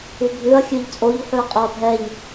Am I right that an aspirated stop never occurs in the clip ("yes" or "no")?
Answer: yes